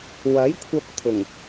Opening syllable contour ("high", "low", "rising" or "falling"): rising